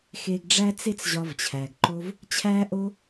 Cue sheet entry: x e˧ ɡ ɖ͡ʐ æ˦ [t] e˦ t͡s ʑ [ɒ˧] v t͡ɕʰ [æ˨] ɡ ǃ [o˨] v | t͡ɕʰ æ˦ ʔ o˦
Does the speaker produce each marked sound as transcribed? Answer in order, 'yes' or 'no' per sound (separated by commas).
no, yes, yes, no